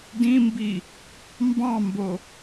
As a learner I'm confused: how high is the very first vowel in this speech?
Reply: high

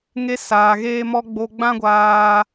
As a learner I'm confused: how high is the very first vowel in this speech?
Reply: mid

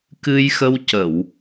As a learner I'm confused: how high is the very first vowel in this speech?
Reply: high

